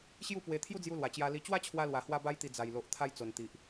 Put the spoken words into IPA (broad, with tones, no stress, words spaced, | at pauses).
ɕju˥˧pwe˧ t̪ʰju˦d͡zju˧lwa˨˩ t͡ɕja˧li˧ t͡ɕwa˦t͡ɕʰwa˧lwa˨˩hwa˧ ba˦j t̪i˧ d͡za˨˩jlo˨ʔ t̪ʰa˧jt͡so˨˩nt̪i˨ʔ